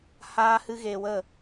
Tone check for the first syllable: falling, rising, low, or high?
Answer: high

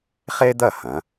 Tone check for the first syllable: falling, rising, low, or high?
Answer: high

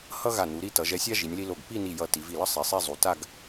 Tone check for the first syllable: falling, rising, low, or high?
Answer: high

